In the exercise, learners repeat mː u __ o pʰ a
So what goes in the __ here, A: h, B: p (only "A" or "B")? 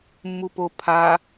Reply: B